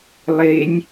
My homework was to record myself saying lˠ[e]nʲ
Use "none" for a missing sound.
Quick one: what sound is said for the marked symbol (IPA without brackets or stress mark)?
e